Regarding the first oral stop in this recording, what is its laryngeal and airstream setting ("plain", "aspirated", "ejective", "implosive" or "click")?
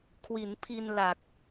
aspirated